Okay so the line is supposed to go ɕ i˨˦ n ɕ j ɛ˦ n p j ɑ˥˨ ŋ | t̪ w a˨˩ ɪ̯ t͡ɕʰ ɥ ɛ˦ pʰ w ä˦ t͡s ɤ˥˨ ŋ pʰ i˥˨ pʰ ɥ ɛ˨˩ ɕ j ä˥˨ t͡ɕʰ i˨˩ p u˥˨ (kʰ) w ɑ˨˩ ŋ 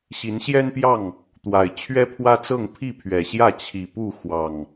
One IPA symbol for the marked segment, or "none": x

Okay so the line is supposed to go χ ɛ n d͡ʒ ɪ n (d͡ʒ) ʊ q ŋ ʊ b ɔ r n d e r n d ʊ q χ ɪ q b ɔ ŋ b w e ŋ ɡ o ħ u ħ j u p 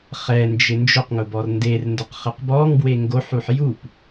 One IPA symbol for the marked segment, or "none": d͡ʒ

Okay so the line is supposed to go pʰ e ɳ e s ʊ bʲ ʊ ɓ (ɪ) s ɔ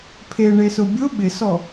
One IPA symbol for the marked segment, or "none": ɪ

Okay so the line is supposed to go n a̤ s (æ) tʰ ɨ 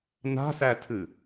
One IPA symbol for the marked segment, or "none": æ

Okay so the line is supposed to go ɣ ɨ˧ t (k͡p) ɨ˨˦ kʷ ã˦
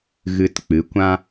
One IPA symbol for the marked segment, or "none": k͡p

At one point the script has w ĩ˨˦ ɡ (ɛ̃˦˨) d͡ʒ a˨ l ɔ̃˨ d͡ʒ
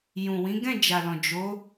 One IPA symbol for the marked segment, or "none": ɛ̃˦˨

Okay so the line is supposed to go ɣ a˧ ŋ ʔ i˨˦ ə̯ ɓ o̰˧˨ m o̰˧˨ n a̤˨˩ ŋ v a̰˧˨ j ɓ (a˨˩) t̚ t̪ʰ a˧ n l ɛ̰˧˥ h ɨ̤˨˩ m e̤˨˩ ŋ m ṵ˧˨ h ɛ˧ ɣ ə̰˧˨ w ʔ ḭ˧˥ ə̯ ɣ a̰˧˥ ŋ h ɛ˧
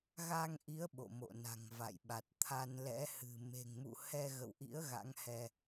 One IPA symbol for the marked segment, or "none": a˨˩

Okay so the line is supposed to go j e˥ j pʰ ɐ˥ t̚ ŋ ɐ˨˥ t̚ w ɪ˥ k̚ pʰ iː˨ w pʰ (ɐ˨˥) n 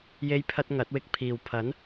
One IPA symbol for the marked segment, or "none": ɐ˨˥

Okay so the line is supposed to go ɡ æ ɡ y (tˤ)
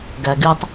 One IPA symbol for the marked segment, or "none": tˤ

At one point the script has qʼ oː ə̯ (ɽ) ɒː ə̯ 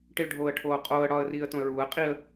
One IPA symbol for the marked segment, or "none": ɽ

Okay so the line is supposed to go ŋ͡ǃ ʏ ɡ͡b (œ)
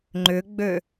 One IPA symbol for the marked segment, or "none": ø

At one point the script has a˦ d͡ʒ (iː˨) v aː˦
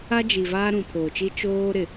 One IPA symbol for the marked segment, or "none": i˨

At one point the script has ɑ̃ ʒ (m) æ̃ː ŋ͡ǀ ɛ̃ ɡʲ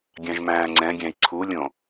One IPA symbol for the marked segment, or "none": m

